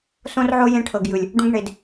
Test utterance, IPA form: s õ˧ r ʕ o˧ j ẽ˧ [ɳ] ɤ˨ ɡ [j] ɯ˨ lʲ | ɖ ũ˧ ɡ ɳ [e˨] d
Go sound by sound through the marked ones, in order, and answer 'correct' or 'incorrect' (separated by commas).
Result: incorrect, correct, correct